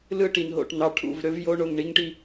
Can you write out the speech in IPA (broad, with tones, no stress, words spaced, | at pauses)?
lɯ˦˨ʈi˨n ɦo̰˨ʈn̪ɑ˨ʈʰṵ˦˨v ɾø˦v jo˦ ɳo˨ŋɳi˦ŋʈi˦